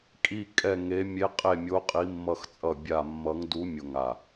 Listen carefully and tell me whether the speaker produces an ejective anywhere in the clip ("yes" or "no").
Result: yes